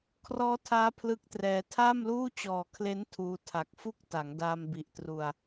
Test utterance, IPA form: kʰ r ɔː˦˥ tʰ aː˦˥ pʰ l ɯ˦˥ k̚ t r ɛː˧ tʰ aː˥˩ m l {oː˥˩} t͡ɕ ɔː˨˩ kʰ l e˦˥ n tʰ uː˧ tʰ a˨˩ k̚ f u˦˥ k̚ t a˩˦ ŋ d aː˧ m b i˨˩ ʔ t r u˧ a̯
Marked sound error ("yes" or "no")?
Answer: yes